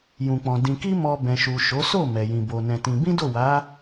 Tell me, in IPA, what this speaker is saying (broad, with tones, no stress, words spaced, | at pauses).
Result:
jũ˨k͡pɔ̃˨ dĩ˨ki˧ mɔ˨ bɛ̃˨ʃu˨ʃo˨˦ so˦˨ mɛ˨jĩ˨ bo˨ nɛ̃˧tĩ˧ bĩ˦do˦˨wa˨˦